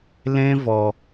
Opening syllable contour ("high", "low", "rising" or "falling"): high